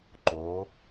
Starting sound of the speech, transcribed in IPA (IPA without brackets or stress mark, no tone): ǃ